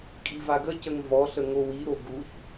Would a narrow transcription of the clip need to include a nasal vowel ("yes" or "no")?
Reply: no